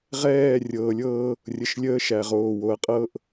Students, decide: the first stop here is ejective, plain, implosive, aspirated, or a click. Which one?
ejective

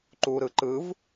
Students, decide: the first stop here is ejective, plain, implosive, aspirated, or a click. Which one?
click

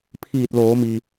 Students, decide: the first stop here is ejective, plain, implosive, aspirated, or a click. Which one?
aspirated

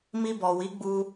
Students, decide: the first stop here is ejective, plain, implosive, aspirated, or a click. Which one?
plain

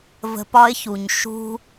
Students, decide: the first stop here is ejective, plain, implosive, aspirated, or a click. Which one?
plain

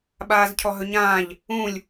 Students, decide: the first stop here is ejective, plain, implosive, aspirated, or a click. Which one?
implosive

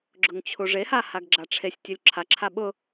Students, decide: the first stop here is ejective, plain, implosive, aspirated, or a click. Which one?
click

